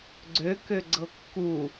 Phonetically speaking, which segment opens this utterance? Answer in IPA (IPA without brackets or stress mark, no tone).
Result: ɡ͡ǀ